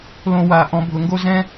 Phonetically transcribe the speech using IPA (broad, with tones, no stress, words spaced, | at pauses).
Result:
lõ˧˩wa˨˩˦ ʔɔ̃˨˦bʱʊ˨˩˦ŋɡo˥ zɛ̃˥